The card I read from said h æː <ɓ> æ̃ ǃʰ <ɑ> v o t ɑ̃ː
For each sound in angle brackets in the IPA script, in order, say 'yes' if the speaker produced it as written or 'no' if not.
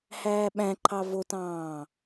yes, yes

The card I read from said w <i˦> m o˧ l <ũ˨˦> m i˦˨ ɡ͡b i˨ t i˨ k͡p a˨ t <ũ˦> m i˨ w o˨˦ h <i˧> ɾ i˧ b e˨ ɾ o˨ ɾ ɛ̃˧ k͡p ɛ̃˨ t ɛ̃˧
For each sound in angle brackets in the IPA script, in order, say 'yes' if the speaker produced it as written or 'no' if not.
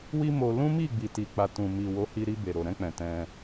yes, no, no, yes

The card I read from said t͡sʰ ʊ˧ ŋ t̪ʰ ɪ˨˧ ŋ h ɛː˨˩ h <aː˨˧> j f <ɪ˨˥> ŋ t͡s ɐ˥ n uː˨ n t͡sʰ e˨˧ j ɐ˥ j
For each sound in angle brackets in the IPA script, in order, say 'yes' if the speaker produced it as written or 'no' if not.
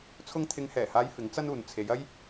yes, yes

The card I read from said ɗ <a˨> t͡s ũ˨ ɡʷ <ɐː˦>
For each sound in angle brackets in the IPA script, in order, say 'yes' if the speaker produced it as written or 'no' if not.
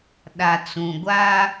yes, no

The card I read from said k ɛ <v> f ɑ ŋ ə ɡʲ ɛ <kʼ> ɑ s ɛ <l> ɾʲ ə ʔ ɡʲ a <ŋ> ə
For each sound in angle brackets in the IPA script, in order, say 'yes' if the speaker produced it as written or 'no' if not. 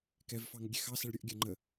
yes, no, no, no

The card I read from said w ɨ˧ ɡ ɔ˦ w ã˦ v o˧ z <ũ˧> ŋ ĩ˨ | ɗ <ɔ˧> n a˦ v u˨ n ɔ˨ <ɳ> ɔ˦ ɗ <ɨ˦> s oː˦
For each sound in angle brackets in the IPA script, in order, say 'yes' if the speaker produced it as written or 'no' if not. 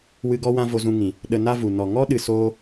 yes, no, no, no

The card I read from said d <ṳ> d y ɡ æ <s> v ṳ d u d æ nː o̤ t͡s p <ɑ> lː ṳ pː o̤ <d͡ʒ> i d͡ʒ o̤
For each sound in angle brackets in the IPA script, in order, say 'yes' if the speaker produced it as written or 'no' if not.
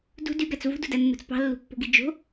yes, no, no, no

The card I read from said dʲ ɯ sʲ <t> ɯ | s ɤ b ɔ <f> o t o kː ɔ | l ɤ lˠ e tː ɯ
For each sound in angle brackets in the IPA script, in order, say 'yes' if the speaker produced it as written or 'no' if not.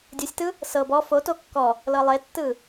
yes, yes

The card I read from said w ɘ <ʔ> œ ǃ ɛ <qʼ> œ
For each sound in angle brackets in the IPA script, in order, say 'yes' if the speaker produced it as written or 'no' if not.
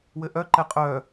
yes, yes

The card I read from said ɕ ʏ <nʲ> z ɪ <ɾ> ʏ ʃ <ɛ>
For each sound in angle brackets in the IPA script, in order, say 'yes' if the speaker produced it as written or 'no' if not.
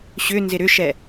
no, yes, yes

